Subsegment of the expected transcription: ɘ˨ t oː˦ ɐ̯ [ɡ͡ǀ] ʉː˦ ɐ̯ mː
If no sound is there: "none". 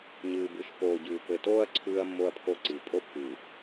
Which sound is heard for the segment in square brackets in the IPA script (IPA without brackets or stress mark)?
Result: ǀʰ